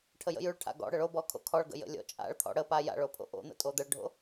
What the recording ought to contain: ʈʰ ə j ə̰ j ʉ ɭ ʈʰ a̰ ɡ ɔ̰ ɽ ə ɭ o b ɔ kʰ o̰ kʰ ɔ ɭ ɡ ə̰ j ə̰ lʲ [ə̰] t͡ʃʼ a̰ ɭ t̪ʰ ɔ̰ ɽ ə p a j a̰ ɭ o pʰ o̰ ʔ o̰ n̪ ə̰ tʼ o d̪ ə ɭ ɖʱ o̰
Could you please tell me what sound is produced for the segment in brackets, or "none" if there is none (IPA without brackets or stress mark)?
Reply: ɔ̰